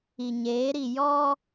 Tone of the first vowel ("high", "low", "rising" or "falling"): low